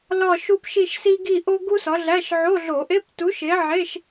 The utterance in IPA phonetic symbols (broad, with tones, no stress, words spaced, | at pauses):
lɒ˥˧ʃu˥pʃi˥˧ʃ si˥ ɡi˥˧ʔo˥ ɡu˥sɒ˨˥ɮæ˧˥˧ʃ ʕo˧˥˧ɮo˧˩˧ʔe˧˥˧ptu˨˥ʃ e˨˥ʕe˧˥˧ʃ